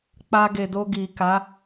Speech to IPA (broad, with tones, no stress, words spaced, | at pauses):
k͡pa˧ ɡe˨do˧ ɡi˨ka˨˦